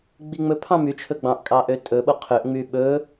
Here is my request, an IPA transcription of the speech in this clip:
ɡ͡b i ŋ͡m ɵ pʰ ɑ̃ m y t͡ʃʰ ɵ ɡ͡b ɑ̃ ʔ kʼ ɑ ʔ ø tʼ ɵ ɓ o qʰ ø ʔ ŋ͡m y ɓ ɵ

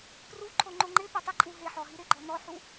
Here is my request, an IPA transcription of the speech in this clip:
p r u ǃʰ o ŋ͡ǃ o ŋ͡ǃ ɪ p ɪ tˤ i ǃʼ u ɦ e ħ ɔ ɦ i ɾ ɪ ɡ͡ǃ ɔ n ɔ ħ u

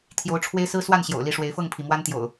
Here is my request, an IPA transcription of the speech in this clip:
t̪ʰ j o˨˦ ʊ̯ ʈ͡ʂʰ w e˦ ɪ̯ s ɹ̩˦ s w a˥˨ n ɕ j o̰˨˩ ʊ̯ l i˥˨ ʂ w e˨˦ ɪ̯ f ɤ˥˨ ŋ pʰ i˩ m w a˦ n t̪ j o̰˨˩ ʊ̯

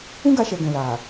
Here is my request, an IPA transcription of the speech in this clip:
ũ˦ ɡ a˧ ʃ ɛ˨ ɡ ɛ̃˨ l a˨

